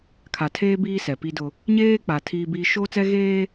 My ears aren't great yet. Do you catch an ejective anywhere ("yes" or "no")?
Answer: no